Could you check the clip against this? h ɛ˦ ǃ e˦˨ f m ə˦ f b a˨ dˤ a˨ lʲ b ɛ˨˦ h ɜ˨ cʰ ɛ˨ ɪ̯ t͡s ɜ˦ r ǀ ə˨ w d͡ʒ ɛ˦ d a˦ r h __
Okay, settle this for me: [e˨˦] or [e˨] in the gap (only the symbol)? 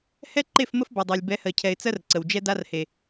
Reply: e˨